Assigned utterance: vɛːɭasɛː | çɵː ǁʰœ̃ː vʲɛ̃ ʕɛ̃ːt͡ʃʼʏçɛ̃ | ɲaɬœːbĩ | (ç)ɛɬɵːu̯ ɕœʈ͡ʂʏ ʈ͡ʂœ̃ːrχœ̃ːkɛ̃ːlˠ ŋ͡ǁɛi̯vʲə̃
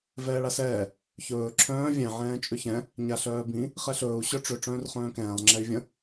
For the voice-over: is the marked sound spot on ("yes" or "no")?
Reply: no